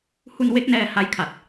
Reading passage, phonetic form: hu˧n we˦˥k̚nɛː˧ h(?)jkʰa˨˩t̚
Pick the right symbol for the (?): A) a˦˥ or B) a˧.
A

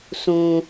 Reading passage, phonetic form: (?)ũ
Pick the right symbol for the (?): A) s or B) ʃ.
A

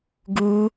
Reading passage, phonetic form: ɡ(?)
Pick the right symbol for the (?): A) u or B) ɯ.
A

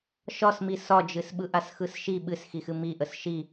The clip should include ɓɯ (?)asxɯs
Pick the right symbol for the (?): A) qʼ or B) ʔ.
B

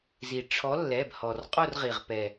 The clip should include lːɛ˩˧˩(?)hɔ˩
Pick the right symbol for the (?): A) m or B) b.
B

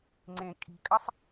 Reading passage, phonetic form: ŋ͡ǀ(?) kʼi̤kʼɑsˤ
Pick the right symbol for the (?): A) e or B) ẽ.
B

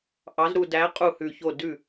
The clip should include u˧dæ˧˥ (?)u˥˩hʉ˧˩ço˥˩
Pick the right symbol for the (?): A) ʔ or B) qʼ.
B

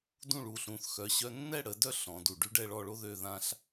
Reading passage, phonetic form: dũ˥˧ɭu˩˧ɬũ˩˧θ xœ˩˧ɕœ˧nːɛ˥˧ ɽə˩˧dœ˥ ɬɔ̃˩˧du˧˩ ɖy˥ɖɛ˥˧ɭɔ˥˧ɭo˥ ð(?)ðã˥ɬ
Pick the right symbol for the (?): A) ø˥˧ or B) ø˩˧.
A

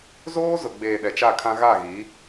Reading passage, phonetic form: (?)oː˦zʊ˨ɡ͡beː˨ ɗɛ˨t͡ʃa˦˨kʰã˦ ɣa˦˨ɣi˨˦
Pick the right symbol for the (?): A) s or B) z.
B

